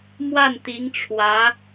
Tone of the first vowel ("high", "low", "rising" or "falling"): falling